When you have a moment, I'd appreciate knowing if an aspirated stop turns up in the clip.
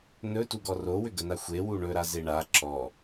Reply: no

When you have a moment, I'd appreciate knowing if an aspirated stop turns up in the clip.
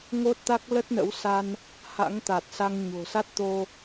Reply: no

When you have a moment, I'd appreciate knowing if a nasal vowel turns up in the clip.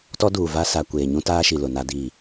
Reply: yes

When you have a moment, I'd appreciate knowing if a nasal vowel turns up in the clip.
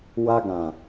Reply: yes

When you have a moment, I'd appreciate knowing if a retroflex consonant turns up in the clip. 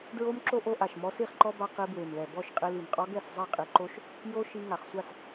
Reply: no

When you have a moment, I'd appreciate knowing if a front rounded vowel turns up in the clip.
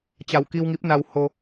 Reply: no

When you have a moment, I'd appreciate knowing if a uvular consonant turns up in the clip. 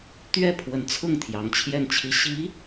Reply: no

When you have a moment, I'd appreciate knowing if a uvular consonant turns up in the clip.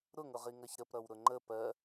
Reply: yes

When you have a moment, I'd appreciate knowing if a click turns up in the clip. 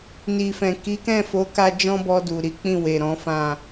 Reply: no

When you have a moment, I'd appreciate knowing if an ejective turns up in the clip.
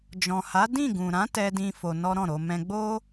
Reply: no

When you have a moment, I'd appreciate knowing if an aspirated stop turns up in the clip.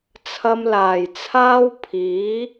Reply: yes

